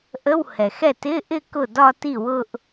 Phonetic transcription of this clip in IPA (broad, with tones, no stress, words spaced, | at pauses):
ʔə˧˥˧whɛ˩xɛ˥˩t ɪ˧˥˧ʔɪ˥˧ kʊ˥˩dɒ˥˧ti˥˩wʊ˥˧ʔ